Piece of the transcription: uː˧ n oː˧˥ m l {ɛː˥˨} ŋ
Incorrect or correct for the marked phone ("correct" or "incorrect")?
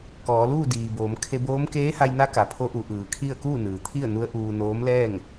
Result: correct